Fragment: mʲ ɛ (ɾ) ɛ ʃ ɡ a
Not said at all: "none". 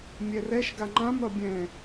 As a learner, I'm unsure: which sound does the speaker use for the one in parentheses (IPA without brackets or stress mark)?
r